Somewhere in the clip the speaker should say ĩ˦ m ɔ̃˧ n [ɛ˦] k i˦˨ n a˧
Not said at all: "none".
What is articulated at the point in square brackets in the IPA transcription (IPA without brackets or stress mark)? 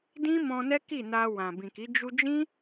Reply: ɛ˦